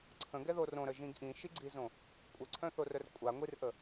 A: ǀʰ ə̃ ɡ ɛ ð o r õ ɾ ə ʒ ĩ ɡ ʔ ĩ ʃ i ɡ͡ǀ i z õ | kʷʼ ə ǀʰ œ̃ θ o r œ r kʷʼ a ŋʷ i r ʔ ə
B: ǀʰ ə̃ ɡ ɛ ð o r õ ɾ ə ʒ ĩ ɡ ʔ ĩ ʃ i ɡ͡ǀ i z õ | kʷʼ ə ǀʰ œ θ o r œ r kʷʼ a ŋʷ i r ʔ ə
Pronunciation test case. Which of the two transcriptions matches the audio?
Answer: A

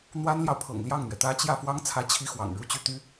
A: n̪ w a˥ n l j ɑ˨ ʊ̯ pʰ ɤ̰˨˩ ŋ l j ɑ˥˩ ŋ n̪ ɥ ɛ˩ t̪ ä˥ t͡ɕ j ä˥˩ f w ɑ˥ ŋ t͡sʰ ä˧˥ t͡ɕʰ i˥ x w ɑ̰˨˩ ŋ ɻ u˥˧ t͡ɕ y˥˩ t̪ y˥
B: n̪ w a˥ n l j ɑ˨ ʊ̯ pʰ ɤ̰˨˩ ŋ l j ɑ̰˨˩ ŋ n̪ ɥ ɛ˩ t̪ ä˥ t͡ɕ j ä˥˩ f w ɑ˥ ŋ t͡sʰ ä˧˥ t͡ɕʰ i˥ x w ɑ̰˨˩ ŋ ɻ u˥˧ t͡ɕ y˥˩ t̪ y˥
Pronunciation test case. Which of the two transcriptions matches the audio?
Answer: A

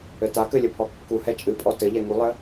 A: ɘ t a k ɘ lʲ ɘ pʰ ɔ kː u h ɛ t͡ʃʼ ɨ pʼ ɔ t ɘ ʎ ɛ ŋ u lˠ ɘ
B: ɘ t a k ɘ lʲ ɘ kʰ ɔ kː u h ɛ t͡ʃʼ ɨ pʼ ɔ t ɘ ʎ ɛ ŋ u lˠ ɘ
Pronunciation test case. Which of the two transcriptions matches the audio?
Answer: A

